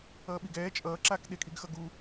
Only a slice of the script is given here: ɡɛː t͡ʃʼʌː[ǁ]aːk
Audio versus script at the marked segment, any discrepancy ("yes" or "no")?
no